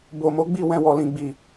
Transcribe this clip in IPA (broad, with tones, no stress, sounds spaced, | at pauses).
b o˨ m o˨˦ ɡ͡b i˦˨ w ɛ̃˧ w ɔ˨ l ĩ˨ ɡ͡b i˨